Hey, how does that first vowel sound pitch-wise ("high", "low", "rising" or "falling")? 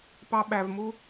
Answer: high